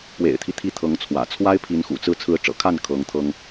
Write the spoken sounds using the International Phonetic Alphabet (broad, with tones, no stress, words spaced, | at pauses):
pwḛ˨˩ɪ̯t̪ʰi˦ t̪ʰi˥˩t̪ʰɤ˧˥ŋt͡sʰwä̰˨˩ t͡sʰwa˥ɪ̯pʰi˧˥nxṵ˨˩t͡sɹ̩˥˩ t͡sʰɹ̩˧˥ʈ͡ʂɤ̰˨˩kʰa˥˩n kʰɤ˧˥ŋt̪ʰɤ˥ŋ